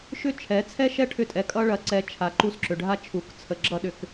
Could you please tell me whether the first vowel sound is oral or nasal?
oral